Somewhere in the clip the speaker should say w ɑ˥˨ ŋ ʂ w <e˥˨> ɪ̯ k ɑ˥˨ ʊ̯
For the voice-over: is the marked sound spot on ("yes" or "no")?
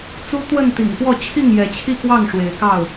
no